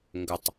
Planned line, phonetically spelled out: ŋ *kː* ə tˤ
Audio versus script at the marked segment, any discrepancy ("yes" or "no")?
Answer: yes